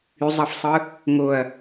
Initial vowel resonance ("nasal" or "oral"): oral